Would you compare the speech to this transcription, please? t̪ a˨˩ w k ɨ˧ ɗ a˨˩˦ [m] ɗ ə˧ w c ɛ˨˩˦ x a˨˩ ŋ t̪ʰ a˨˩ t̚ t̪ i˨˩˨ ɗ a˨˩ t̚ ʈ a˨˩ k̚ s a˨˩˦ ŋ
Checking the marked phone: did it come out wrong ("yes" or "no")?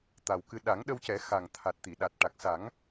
yes